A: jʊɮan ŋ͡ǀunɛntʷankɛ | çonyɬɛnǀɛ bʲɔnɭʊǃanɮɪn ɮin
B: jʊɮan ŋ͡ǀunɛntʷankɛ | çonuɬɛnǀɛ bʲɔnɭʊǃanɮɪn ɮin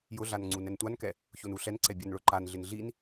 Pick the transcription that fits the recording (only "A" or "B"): B